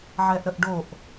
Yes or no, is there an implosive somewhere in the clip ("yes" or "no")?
no